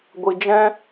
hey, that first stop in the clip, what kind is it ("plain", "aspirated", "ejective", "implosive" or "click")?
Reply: plain